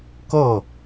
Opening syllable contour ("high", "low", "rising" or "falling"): falling